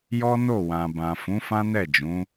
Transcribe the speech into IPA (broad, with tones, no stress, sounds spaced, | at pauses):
j ɔ˦ n o˦˨ w ã˨ b ã˨ f ũ˨˦ f ã˦ n ɛ˦˨ d͡ʒ ũ˨˦